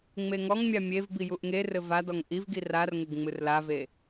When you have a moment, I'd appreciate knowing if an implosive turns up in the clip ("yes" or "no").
no